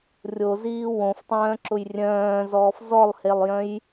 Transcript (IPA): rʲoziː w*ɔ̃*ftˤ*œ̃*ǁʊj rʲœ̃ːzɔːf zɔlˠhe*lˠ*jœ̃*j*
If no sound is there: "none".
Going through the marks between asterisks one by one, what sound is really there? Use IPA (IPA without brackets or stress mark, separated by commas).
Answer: õ, œ̃ː, lˠ, j